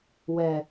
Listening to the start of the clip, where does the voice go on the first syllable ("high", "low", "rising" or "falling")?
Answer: low